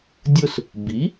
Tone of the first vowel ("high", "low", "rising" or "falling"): falling